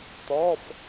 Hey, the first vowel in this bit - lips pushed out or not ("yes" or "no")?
yes